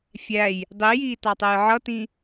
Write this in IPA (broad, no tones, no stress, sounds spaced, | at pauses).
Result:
fʲ æ j | dˤ i j iː t ɑ tˤ ɛ j ʕ ʌ t ĩ